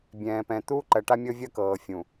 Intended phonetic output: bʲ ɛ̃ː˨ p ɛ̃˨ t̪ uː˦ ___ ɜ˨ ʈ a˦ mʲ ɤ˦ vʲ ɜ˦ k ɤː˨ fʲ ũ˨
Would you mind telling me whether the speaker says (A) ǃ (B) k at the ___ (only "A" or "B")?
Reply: A